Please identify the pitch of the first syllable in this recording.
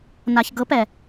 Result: low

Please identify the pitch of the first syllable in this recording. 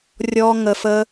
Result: high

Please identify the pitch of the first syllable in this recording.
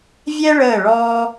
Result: high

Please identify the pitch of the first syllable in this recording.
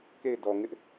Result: falling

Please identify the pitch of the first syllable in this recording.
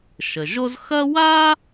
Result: low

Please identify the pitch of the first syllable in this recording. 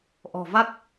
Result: low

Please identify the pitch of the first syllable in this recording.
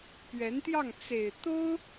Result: rising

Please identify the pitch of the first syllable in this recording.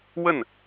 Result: falling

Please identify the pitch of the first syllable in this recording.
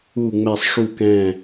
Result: falling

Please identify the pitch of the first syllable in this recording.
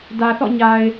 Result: low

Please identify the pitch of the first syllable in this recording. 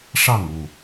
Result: falling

